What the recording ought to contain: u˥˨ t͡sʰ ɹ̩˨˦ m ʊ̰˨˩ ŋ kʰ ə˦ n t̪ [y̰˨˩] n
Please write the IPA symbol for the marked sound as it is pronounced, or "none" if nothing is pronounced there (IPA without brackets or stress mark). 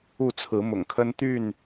y˥˨